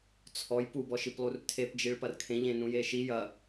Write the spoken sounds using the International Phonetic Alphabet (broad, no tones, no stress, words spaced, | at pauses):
t͡sʰɔj pubɔʃiplˠur tʰepd͡ʒiɭpɐr kʰẽʎẽ nũjeʃi jɐ